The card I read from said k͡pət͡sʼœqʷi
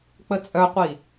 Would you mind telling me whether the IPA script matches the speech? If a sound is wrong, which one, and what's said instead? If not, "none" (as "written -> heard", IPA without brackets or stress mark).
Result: none